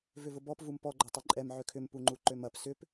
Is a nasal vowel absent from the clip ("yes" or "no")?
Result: yes